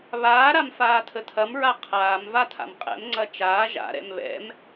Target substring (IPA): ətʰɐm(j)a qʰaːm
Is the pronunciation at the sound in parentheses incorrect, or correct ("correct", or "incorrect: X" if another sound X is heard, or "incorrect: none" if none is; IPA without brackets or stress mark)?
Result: incorrect: ɹ